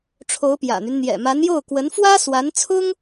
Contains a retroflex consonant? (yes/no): yes